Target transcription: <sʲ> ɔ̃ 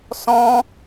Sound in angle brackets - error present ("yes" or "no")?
yes